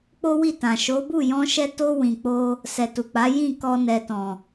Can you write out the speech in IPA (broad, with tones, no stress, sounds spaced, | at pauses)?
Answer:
k͡p o˦ w i˦˨ t ã˨ ʃ o˨˦ b u˦˨ j ɔ̃˧ ʃ ɛ˧ t o˧ w ĩ˨ k͡p o˧ | s ɛ˨ t u˨ k͡p a˨˦ j ĩ˦˨ k ɔ˧ n ɛ˨ t ɔ̃˨